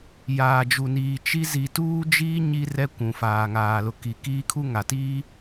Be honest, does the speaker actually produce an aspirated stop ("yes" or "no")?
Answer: yes